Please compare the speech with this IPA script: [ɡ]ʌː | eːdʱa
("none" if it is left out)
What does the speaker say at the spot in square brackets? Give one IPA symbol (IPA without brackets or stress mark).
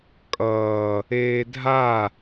kʼ